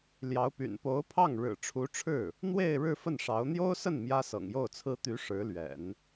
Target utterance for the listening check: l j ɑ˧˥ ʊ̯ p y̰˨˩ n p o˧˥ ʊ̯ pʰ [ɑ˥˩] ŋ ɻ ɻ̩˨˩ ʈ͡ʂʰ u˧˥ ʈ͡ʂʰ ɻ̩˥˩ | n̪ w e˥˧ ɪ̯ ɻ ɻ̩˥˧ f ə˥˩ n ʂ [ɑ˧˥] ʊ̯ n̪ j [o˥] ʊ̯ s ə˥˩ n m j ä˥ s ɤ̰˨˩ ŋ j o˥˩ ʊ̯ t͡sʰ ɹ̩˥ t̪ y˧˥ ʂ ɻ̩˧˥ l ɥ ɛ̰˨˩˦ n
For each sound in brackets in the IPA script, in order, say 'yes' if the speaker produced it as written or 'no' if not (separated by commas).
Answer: yes, yes, yes